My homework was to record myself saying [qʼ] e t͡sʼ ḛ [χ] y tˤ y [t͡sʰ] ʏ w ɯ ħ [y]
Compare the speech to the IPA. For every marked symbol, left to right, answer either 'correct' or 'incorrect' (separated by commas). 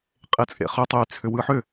correct, correct, correct, incorrect